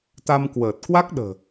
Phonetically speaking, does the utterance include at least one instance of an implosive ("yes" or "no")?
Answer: yes